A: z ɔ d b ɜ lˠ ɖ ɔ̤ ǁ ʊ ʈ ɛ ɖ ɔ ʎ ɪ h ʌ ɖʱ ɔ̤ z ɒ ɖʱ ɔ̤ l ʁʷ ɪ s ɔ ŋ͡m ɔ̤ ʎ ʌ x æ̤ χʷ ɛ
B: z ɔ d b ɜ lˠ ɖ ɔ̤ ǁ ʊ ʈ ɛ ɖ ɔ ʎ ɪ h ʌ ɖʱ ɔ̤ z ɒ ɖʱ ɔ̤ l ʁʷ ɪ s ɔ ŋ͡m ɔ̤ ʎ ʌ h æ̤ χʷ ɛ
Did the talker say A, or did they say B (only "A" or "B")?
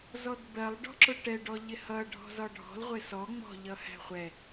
B